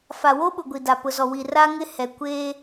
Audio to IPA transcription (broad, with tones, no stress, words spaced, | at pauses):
fa˨wo˦ɓʊ˨ ɡʷi˨da˨pʊ˨zɔ˨ wi˨ra˦ŋɪ˦hɛ˨ kʷeː˦